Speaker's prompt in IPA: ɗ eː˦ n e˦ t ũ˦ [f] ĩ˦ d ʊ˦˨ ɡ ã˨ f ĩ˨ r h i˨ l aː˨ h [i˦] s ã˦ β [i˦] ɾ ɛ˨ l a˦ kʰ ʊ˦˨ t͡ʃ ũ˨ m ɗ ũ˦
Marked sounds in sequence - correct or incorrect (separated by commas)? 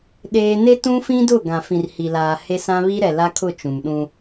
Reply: correct, incorrect, correct